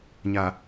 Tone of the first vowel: low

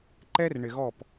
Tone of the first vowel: high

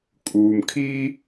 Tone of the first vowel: low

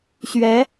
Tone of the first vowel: rising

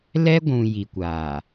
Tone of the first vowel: high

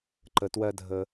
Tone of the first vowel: low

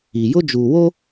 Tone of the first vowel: low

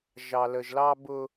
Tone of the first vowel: low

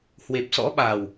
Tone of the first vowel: low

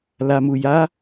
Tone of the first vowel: low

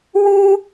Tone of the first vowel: high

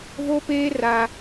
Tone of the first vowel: high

